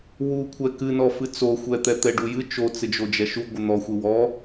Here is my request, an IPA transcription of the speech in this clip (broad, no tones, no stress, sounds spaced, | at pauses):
w u kʷʰ ɛ k ɨ n ɔ f ɨ t͡s o xʷ ɛ t̪ ɛ t̪ ɛ ɖ u j ɨ t͡ʃ o t͡s ɪ d͡ʒ o d͡ʒ ɛ ʃ u ɡʷ ɪ n̪ ɔ xʷ ɪ w ɔ